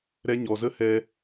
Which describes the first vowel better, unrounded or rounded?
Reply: unrounded